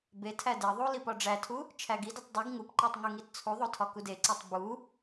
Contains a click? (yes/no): yes